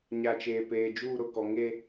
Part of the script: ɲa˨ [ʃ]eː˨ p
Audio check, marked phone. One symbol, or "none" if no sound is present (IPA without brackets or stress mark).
t͡ʃ